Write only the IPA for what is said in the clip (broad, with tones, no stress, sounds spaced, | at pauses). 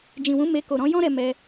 d͡ʒ ĩ˨ w ũ˨˦ m e˧ k o˨ ɾ ɔ̃˨˦ j ɔ̃˦ ɾ ɛ˧ m ɛ˧